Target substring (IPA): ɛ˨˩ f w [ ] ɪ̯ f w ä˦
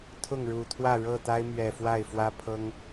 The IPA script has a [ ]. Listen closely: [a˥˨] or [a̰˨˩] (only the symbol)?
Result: a˥˨